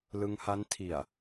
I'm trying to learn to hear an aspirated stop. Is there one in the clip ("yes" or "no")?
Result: yes